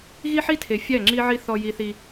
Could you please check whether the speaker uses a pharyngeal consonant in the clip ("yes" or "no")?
yes